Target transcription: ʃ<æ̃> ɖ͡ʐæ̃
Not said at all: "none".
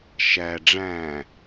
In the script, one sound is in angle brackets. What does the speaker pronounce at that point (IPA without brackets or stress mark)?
æ